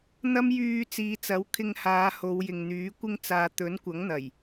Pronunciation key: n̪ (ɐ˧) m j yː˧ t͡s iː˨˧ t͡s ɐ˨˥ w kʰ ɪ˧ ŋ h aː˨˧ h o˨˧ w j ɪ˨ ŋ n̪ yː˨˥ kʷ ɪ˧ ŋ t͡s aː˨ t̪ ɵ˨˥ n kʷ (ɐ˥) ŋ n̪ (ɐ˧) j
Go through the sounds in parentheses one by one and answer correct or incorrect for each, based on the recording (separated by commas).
incorrect, incorrect, incorrect